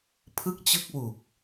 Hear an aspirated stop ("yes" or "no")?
yes